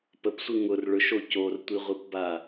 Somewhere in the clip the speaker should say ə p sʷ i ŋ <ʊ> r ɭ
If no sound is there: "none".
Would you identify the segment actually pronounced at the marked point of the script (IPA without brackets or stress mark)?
ʊ